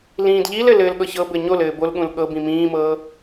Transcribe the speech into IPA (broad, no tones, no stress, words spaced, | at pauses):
lĩːdʎilɘ lɘːlɠɤçɤbɘ ɲolɘː bolɠũl ɠɤbĩ mĩːmɤː